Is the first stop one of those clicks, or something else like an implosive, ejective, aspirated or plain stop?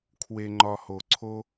aspirated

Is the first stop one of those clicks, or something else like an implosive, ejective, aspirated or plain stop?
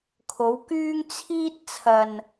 aspirated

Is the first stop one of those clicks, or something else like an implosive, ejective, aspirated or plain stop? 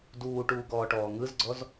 plain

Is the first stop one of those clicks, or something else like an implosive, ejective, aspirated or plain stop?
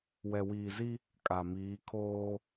ejective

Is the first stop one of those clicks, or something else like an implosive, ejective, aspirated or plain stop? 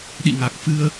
implosive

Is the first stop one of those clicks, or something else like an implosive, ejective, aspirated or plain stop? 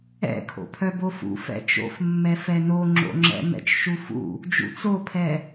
aspirated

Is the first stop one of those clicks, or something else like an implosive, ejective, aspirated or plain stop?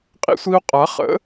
ejective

